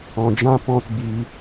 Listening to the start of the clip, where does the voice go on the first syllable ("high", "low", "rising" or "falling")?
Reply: low